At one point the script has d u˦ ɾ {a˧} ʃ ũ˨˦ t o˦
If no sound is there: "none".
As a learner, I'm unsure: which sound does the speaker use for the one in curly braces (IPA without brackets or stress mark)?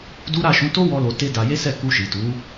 a˦˨